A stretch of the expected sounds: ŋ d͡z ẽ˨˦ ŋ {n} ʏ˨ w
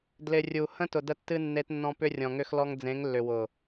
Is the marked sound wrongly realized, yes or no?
yes